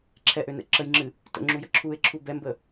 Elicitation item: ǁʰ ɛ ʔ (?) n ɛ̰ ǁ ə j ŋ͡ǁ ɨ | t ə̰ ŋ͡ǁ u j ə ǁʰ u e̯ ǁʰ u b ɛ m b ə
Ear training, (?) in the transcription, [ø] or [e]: ø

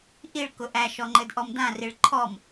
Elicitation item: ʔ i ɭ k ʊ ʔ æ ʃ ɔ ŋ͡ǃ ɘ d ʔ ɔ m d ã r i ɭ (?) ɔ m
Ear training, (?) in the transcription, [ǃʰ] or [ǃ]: ǃʰ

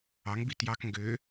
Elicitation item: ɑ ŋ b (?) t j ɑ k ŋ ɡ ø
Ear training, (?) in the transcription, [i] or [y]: i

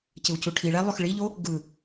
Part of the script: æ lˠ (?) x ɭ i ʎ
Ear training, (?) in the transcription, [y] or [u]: y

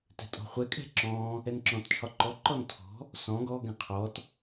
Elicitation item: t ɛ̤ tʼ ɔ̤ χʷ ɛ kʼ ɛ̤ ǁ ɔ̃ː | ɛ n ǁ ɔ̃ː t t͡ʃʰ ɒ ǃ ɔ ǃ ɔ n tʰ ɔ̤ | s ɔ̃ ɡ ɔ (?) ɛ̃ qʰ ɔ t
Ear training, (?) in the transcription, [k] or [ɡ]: ɡ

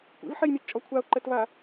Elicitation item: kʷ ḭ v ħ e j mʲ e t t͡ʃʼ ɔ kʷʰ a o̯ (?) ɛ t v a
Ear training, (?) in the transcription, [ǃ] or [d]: ǃ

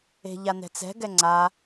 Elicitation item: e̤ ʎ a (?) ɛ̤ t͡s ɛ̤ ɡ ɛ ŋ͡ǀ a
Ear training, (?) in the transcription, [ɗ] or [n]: n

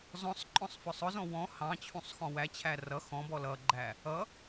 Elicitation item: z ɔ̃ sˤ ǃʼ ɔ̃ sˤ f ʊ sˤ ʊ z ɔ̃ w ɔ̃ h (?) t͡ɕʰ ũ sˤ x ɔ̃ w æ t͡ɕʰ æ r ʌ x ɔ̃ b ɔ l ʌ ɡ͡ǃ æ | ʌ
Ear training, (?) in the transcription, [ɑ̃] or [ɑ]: ɑ̃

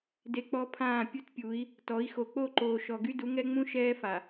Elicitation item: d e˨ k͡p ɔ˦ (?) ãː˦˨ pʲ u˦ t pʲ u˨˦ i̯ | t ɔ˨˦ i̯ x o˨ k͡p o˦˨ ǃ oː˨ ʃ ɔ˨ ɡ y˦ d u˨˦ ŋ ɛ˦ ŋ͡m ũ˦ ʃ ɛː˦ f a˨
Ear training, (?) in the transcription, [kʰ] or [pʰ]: pʰ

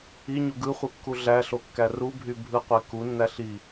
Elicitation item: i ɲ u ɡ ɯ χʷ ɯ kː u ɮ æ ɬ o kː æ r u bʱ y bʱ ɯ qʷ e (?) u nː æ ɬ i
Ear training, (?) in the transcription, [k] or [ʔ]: k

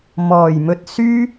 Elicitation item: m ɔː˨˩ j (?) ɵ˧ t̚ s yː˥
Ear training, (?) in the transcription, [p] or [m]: m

